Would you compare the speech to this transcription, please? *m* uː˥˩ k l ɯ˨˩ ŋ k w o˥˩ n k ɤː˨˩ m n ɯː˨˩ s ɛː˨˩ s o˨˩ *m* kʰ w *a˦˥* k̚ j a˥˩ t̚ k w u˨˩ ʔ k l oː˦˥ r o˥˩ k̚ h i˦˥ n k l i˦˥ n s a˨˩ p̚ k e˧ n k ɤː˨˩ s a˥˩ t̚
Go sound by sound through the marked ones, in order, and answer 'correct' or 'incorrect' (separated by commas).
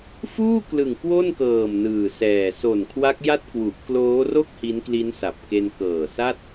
incorrect, incorrect, correct